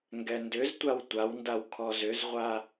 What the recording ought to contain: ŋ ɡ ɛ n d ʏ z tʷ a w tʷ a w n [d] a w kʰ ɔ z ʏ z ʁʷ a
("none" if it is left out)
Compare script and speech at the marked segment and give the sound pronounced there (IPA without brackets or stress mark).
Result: d